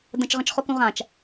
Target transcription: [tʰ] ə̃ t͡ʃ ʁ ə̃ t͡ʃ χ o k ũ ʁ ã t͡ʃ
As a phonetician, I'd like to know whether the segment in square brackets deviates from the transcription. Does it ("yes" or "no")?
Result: yes